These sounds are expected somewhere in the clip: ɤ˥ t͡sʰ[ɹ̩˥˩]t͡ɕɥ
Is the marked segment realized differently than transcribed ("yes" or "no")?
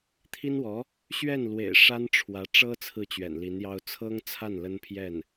no